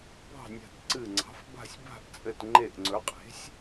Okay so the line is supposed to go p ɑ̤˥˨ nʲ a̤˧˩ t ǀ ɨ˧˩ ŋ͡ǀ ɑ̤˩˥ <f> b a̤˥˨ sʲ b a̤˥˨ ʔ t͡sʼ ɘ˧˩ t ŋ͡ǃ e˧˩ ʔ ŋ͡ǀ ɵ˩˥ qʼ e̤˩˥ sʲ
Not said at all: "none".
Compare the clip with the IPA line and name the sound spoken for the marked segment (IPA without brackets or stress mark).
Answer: f